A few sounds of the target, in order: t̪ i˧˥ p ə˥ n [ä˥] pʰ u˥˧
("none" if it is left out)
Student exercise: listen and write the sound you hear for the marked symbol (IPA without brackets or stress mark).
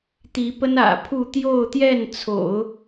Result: ä̰˨˩